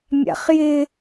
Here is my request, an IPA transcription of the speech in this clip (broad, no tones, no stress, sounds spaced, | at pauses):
mʲ a̰ χ j ɪ